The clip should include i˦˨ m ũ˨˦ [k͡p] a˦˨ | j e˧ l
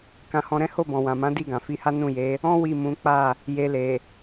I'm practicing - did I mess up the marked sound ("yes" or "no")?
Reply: no